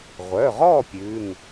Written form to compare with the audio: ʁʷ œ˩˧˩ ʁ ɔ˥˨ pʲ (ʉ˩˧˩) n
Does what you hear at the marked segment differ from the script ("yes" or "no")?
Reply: no